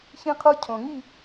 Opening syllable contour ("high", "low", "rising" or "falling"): high